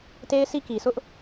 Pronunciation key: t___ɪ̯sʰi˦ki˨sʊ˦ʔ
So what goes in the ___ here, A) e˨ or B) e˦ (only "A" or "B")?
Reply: B